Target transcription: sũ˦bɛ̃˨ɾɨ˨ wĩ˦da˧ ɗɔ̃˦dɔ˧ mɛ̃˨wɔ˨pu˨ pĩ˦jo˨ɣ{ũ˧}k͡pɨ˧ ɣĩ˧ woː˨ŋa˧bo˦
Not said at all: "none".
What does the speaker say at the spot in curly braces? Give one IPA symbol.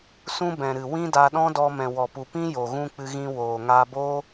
ũ˧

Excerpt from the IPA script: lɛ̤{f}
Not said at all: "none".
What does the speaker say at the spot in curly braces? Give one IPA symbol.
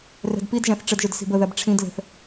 θ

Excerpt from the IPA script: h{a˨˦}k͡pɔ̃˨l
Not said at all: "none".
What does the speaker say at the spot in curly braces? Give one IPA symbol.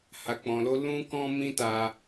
a˨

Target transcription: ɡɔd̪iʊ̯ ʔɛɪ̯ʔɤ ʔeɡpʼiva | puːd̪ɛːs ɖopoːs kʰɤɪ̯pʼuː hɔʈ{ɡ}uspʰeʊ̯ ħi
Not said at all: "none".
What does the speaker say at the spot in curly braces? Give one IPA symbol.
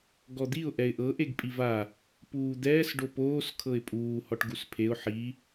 ɡ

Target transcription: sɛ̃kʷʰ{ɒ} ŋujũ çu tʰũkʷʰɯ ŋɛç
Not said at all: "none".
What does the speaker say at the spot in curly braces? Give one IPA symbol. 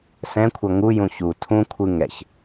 ʌ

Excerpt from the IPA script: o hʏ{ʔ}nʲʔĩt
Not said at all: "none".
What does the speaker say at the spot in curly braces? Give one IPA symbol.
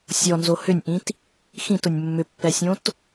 none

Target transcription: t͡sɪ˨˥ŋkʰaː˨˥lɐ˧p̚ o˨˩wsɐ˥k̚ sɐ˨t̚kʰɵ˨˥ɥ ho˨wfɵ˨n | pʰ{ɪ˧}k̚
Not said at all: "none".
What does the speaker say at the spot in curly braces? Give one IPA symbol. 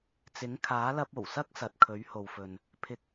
ɪ˧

